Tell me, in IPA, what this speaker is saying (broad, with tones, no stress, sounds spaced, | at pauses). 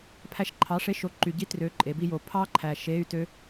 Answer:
pʰ æ˧ ʃ ǃʰ ɑ˨˥ ʂ e˧˥˧ ʃ o˨˥ ǃ y˨˩ ɟ i˦˥ t r ø˨˥ ǃʼ e˩˧ b i˧ j o˨˩ pʰ ɑ˦˥ ǃʰ æ˨˩ ʃ e˧˥˧ y̯ t ø˦˥